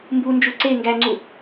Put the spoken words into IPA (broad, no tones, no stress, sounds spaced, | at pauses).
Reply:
m b u n d͡ʒ u ǀ e ŋ ɡ æ ŋ͡ǀ u